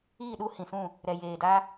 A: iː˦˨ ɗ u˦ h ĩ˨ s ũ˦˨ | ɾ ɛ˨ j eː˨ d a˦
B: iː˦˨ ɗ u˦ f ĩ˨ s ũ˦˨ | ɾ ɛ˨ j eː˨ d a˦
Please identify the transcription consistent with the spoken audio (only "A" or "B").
A